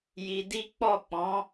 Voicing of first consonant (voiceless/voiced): voiced